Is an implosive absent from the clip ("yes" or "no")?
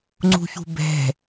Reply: yes